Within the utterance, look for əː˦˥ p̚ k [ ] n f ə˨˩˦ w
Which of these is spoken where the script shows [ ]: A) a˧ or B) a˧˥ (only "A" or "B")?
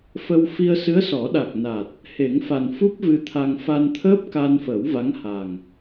A